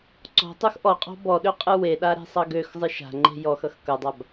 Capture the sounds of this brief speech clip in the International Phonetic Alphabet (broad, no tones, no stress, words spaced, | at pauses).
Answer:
ǀɔ̤ tˤoxʔɔqʼɔ̤ bɔɗø qʼɨweɗa ɾe̤sˤʌɡøxzˤɨ ʃa̤ŋ͡ǃe̤ jɔxʌx kʌdˤab